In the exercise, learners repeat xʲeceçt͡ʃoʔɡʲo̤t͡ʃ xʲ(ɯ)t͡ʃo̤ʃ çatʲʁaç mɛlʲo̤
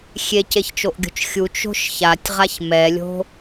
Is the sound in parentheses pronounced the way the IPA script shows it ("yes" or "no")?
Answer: no